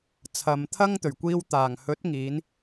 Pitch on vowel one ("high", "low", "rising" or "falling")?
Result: low